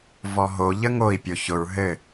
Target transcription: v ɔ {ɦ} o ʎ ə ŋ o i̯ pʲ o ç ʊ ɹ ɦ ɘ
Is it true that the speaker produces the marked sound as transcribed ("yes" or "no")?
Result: yes